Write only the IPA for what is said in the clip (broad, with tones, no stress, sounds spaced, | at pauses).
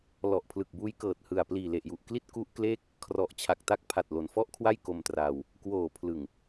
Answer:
l ɔ˨˩ ʔ pʰ l ɯ˨˩ k̚ b uː˦˥ j k ɤː˨˩ t̚ h ɯ˨˩ a̯ p l iː˨˩ l e˨˩ ʔ j u˨˩ ʔ k l i˥˩ t̚ k u˦˥ ʔ k l eː˥˩ k̚ | kʰ r ɔ˨˩ ʔ t͡ɕʰ a˨˩ k̚ t a˦˥ k̚ pʰ a˨˩ t̚ l o˩˦ n f ɔ˥˩ ʔ kʰ w a˥˩ j k o˧ m t r aː˧ w | k w oː˨˩ pʰ l ɯ˨˩ ŋ